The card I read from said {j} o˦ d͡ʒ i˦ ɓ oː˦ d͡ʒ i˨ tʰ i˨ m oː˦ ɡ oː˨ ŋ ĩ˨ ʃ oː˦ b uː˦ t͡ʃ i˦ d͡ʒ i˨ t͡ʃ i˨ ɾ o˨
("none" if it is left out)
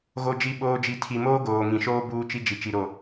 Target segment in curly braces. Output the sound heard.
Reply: ɣ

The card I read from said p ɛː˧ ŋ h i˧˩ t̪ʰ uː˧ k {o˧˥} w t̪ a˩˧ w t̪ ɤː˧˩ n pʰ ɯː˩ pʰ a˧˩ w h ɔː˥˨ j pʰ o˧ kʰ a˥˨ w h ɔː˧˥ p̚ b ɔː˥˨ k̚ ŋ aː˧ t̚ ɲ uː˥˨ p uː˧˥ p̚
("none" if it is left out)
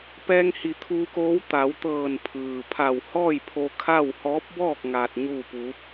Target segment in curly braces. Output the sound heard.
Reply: oː˧˥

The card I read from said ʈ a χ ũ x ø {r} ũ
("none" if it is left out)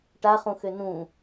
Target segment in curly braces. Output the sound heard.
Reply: n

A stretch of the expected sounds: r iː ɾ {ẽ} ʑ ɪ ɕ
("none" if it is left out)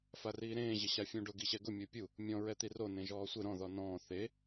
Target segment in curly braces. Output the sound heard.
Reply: ẽː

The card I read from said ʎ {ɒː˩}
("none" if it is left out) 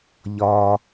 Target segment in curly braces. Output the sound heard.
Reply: ɒː˧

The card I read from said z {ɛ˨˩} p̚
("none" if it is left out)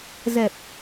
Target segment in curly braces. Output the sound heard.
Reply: ɛ˨˩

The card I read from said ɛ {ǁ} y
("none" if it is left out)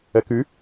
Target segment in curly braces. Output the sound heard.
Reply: k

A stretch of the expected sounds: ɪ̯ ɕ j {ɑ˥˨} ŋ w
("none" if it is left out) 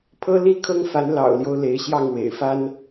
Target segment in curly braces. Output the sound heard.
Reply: ɑ˥˨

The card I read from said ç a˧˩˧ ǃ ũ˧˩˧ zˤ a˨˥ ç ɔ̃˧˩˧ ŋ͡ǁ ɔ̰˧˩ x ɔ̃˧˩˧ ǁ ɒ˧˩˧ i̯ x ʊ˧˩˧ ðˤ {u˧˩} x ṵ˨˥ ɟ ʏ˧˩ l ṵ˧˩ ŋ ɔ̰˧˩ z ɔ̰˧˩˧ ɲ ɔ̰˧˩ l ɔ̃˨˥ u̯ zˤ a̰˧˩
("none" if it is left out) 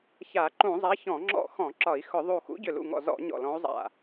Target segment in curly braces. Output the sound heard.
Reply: u˧˩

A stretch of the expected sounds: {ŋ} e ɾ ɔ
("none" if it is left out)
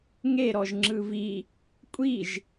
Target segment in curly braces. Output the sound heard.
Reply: ŋ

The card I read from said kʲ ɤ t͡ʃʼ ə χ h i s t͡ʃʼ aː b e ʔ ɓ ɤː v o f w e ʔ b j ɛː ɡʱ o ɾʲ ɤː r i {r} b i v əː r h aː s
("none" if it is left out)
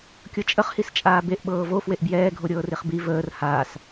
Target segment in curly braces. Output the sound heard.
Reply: χ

